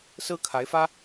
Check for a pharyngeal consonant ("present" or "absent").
absent